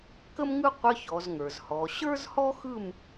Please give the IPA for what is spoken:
kə˥mŋɯ˥ qʷə˧˥˧çɔ˩˧zŋə˞˩zhɔ˩˧ ɕə˞˥zhɔ˥xɯ˥˧m

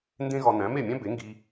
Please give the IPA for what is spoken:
ndẽ˥ɣɒ˧ næ̃˩˥ me˥˩mʲæ̃˥ be˩˥ŋɡi˧

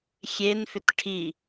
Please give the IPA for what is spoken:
xʲenfʏt ʈʰi

